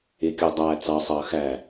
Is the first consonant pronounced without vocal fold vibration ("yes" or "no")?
yes